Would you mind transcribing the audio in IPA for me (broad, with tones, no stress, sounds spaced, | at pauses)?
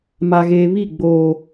m a˨ ɣ eː˨ β i˦˨ ɡ͡b oː˨